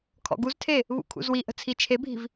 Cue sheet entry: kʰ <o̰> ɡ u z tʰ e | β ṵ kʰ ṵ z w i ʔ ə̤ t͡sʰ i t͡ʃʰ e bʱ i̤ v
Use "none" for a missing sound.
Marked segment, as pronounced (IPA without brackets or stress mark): ɔ̰